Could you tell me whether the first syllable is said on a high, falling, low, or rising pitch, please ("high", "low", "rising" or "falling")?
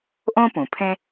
high